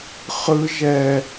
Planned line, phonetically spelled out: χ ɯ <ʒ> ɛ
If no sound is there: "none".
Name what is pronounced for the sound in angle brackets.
ʒ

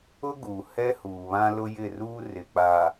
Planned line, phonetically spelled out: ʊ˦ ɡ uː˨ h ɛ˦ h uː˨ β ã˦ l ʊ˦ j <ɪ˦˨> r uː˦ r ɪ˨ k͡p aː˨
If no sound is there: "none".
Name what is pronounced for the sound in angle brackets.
ɪ˦˨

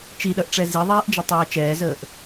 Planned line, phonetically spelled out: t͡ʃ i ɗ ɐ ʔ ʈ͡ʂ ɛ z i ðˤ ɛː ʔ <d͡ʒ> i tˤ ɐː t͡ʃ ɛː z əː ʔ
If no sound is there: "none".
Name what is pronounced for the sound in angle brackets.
d͡ʒ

